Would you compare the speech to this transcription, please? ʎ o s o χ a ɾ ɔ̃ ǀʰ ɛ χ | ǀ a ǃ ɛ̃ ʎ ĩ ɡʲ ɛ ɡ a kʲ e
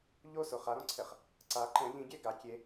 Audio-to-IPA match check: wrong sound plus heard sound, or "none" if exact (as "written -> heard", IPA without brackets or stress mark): none